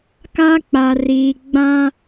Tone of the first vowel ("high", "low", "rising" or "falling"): high